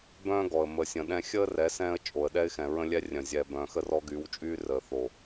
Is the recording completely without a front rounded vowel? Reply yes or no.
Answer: no